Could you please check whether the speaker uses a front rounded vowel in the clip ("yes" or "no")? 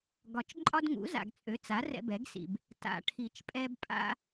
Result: yes